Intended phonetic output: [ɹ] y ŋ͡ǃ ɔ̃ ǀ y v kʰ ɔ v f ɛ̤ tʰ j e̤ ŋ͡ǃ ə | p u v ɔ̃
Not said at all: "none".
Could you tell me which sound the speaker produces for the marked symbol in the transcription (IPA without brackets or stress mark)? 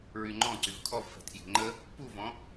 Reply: ɹ